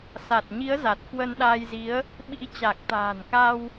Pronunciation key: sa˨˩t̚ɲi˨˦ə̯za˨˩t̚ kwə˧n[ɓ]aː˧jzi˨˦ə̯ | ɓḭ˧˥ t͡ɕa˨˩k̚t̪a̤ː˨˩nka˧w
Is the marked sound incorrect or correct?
incorrect